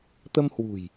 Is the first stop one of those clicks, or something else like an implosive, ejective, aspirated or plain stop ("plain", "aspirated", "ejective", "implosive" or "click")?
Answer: plain